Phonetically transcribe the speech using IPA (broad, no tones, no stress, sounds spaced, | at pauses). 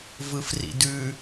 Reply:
v ɯ f r ḭ d ʉ